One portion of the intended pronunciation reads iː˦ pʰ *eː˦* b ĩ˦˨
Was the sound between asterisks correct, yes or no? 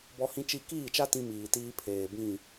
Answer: no